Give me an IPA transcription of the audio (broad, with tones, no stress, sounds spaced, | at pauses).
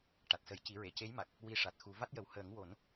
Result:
ʈ a˨˩ t̚ s ə˨˩˦ j c i˨˩˦ ɹ e˨˩˨ c e˧˥ j m a˨˩ k̚ | w i˧ ʂ a˨˩ t̚ x u˨˩˦ v a˦˥ t̚ j ə˨˩ w h əː˨˩˦ ŋ w o˨˩˦ n